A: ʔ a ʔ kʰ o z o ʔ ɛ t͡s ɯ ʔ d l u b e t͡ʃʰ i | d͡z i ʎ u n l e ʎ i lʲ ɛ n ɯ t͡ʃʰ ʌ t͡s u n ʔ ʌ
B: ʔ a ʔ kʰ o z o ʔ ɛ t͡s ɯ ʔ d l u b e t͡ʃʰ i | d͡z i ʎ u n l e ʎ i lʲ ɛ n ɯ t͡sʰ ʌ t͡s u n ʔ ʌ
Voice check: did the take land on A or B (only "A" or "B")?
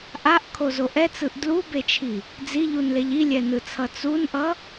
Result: B